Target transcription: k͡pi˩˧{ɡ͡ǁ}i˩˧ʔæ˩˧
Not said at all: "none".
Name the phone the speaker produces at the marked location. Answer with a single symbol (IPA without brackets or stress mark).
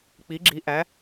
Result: ɡ͡ǁ